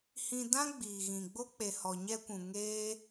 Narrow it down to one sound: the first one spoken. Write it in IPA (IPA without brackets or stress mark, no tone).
h